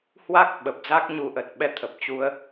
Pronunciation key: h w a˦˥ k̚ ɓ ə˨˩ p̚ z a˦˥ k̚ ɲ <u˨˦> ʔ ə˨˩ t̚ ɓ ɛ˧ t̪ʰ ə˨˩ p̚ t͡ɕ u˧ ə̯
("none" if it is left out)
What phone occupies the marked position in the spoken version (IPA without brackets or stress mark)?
u˨˦